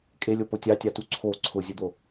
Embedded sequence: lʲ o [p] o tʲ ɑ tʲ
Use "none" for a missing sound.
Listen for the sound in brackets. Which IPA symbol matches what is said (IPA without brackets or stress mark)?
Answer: p